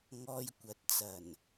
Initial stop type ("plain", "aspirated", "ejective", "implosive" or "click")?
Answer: plain